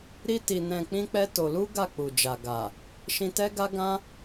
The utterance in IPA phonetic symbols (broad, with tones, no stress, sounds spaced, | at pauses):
ɾ i˦ t i˧ n ɛ̃˧ k͡p ĩ˦ k͡p ɛ˦ t o˧ l u˦ ɡ a˦˨ k͡p u˨ d͡ʒ a˨ ɡ a˨ | ʃ ĩ˧ t ɛ˦ ɡ a˦ ɡ ã˦